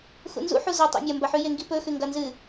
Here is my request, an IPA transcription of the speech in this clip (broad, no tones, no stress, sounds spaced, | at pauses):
x ṵ n z ṵ ħ u z ɐ tˤ o̰ mʲ ɐ m b ɐ ħ ʉ j e ŋ ɡ i p ɵ x ʉ ŋ ɡ ɐ n z ɨ